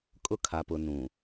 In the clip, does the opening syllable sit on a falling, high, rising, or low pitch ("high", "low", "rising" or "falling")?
high